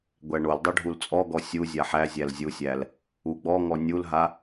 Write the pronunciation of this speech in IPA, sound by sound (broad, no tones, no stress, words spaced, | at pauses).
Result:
ɡʷæɳoldˤo ɖʱult͡sʼɔɡɔ sʲuzʲa ħæzʲæl zʲusʲæl | uɡ͡bɔŋɔ nʲulɦa